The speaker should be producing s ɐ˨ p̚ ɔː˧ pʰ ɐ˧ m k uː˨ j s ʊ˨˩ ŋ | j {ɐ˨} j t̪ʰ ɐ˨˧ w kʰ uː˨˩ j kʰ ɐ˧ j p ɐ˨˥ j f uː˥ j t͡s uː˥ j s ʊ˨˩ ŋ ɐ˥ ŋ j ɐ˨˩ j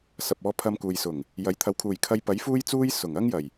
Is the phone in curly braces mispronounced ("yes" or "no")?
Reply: yes